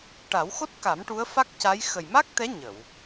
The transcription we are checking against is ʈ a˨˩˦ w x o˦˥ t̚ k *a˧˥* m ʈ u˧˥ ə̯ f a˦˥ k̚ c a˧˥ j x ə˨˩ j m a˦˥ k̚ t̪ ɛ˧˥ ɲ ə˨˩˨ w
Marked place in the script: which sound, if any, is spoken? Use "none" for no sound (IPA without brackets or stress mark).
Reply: a˨˩˦